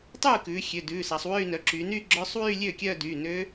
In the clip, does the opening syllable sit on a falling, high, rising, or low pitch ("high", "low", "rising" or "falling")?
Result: falling